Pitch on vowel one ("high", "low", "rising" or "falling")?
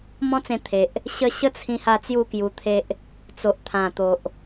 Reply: high